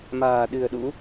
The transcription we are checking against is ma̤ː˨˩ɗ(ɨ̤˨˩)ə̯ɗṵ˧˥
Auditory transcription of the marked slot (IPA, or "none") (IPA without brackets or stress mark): ɨ̤˨˩